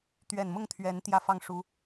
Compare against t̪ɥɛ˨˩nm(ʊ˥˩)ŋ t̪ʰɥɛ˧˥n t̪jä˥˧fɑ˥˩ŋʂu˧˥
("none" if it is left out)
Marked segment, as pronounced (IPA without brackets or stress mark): ʊ˥˩